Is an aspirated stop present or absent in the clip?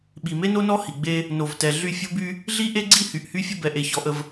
absent